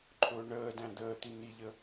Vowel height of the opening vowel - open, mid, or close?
close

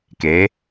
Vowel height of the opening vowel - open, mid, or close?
mid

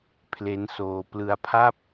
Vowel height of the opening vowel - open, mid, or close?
mid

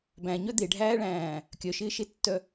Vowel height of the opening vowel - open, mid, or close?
open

